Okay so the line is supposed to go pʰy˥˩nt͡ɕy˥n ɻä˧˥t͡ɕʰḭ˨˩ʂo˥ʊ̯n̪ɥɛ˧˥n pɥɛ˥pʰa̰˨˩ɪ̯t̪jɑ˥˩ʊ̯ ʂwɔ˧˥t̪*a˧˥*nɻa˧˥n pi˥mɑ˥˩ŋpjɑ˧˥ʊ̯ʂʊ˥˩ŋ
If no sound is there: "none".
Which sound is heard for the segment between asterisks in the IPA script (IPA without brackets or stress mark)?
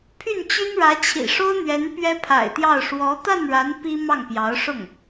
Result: a˥˩